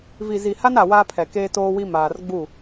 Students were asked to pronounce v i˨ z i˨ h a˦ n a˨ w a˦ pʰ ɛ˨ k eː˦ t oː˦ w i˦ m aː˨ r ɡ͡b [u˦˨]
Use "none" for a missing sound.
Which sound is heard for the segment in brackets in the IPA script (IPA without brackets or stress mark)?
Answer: u˦˨